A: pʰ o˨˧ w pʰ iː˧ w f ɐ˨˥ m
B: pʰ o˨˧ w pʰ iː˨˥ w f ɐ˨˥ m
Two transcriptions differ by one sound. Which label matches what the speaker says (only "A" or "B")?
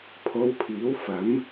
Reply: B